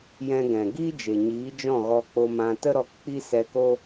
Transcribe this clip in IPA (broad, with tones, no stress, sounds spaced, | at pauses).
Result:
j ɛ̃˧ ɡ ɛ̃˨ ɡ iː˦ d͡ʒ e˨ ɲ iː˨˦ d͡ʒ ɔ̃˦˨ ɣ ɔ˧ k͡p o˧ m ã˧ t ə˦ ɾ ɔ˧ k k͡p i˦ s ɛ˧ k o˦